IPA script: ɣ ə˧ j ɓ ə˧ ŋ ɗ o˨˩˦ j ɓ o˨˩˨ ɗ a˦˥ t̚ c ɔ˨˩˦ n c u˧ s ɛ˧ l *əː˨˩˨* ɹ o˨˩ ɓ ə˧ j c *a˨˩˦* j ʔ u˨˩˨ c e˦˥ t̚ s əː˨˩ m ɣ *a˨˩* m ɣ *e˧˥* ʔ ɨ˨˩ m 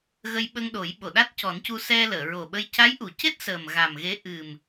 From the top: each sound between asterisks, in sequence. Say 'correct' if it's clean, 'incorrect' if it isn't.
correct, incorrect, correct, correct

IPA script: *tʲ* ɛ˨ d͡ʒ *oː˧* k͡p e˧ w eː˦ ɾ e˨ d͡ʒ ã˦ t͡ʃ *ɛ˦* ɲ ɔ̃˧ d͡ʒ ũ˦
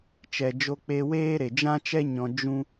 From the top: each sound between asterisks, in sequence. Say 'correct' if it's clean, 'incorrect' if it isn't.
incorrect, incorrect, correct

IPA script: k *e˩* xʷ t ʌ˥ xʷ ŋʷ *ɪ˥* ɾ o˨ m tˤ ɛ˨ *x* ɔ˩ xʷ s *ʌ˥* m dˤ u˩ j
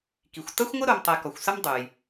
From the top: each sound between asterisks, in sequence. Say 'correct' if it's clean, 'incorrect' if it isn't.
incorrect, correct, incorrect, correct

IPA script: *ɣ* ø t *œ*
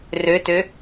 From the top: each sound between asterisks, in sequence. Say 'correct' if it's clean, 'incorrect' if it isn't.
incorrect, incorrect

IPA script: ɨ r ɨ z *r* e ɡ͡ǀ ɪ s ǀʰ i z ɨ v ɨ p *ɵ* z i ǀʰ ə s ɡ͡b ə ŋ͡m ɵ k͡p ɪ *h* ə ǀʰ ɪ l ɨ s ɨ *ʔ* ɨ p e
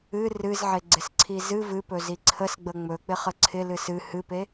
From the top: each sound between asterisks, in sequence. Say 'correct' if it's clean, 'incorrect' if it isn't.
incorrect, correct, incorrect, incorrect

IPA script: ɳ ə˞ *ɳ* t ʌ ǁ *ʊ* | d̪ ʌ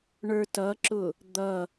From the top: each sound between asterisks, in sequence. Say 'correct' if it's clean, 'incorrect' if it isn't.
incorrect, correct

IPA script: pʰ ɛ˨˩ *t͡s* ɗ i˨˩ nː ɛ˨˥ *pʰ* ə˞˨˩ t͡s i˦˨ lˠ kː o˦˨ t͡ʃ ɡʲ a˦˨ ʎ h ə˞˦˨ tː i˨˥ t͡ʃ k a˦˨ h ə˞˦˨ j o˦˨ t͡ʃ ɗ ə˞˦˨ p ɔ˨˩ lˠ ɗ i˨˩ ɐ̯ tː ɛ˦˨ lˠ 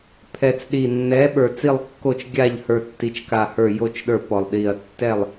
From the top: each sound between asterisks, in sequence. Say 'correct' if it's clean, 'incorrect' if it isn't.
correct, incorrect

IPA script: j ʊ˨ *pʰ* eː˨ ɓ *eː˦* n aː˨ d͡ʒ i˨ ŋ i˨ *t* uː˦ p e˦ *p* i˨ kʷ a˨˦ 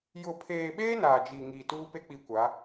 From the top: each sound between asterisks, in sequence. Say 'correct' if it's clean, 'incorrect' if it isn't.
correct, correct, correct, incorrect

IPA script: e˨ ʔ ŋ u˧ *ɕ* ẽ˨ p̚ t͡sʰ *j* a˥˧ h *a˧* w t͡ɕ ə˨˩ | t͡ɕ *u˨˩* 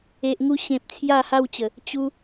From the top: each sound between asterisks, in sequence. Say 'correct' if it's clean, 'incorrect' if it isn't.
correct, correct, incorrect, incorrect

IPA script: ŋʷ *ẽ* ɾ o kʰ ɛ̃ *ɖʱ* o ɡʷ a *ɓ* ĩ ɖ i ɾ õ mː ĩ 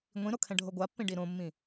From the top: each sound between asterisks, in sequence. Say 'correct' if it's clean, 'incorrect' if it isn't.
incorrect, correct, incorrect

